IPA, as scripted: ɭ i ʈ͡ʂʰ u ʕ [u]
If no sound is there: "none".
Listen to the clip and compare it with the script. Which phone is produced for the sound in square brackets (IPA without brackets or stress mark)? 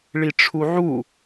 u